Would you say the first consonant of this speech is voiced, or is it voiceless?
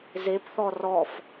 voiced